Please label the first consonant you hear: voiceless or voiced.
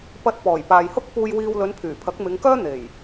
voiceless